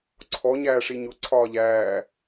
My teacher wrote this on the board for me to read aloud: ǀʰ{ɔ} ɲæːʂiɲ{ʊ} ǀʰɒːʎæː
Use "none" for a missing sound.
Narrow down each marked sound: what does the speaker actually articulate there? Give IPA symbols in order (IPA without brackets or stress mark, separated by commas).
ɔ, ʊ